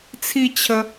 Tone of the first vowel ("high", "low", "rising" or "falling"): falling